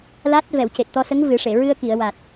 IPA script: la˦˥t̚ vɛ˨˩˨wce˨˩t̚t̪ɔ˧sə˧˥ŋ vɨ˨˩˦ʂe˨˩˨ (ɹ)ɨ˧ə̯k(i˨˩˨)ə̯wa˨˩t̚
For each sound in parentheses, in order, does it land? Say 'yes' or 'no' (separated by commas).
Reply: yes, yes